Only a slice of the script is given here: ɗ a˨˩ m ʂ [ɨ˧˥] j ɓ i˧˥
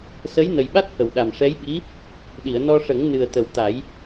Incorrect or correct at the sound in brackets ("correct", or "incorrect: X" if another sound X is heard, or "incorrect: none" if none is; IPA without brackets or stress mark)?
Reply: incorrect: ɛ˧˥